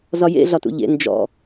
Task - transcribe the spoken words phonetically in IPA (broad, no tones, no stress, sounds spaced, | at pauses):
z ɒ j ḛ ɮ ɒ t ṵ ʎ ḛ n d͡ʒ ɔ̰